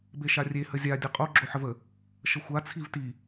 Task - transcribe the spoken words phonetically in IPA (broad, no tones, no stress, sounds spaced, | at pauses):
b e ʃ a rʲ e h ə zʲ a dʲ ɯ qʼ o ɡ͡ǁ o ħ ə v ə | ʃ ə xʷ a t͡sʰ i v t i